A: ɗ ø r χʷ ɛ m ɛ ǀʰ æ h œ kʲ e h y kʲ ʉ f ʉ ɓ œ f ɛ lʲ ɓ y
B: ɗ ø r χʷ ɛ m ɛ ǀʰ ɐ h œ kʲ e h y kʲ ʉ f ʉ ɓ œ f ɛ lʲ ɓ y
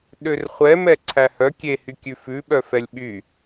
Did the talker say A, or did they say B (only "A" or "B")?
A